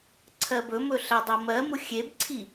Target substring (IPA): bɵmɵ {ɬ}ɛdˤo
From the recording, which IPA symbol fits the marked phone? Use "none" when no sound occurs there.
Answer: ɬ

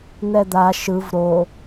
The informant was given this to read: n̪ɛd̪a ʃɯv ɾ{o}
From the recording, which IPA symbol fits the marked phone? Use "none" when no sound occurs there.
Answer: o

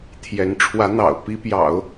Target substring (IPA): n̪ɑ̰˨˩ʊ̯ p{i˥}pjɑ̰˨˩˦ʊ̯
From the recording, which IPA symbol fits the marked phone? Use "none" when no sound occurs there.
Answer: i˥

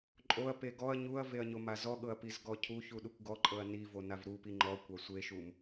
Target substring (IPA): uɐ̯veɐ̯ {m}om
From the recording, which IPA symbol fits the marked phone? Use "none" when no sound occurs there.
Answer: ɲ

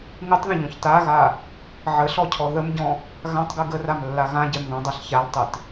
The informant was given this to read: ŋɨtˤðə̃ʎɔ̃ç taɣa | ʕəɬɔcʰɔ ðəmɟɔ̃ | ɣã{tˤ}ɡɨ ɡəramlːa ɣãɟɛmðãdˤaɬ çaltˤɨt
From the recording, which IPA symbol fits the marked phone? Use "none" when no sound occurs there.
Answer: tˤ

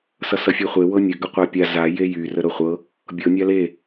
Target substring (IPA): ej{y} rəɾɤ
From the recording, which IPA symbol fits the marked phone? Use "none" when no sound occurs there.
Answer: y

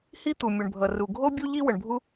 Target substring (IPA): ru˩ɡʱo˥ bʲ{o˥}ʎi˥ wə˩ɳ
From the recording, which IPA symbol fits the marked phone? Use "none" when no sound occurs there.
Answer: u˥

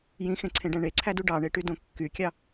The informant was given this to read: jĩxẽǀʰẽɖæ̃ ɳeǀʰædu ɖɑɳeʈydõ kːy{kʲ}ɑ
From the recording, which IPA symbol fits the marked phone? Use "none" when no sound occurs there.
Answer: kʲ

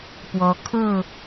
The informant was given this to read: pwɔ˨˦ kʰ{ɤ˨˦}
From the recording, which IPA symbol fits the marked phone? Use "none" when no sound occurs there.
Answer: ɤ˥˨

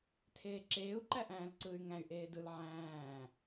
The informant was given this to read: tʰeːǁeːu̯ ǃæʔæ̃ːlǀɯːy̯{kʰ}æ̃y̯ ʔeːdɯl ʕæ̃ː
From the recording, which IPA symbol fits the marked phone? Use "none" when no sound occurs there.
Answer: ŋ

